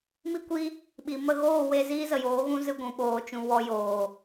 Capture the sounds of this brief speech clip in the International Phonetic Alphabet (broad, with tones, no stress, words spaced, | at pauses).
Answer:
mi˦kʷi˦ | ɓi˨ mə˧ɣoː˦˨we˧ ziː˦zə˨joː˨˦ɣũ˦ zɨ˧ ɡʷũ˨ɓoː˨t͡ʃũ˨ wɔ˨ joː˨